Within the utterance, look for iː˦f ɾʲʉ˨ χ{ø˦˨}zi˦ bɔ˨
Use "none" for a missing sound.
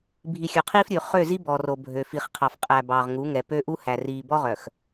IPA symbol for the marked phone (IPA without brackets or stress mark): ø˦˨